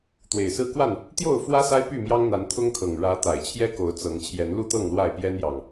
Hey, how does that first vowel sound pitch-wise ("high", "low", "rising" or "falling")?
low